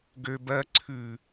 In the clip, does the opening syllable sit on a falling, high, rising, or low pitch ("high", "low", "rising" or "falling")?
high